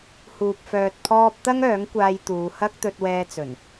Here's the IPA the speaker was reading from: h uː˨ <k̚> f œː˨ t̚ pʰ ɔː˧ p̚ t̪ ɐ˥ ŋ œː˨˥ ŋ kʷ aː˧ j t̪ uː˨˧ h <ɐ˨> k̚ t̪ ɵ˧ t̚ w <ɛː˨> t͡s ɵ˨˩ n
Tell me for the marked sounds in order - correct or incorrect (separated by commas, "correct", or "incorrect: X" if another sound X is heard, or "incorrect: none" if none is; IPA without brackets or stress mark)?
incorrect: p̚, incorrect: ɐ˥, incorrect: ɛː˧